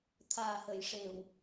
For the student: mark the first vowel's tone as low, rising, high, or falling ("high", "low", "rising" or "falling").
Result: low